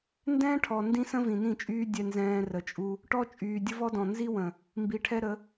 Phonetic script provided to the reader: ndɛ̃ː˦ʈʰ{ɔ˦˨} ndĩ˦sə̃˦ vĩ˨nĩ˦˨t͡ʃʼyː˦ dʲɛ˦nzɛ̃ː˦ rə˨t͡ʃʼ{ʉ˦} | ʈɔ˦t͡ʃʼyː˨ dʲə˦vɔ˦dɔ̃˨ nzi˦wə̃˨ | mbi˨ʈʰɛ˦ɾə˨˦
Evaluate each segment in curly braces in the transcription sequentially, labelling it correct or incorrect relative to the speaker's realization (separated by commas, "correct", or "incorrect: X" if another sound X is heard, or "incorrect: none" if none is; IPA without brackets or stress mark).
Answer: incorrect: ɔ˨, incorrect: u˦